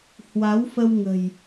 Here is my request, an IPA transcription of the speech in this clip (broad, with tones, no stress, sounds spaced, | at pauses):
h w a˨˦ w f ə˧ w ŋ ə̤˨˩ j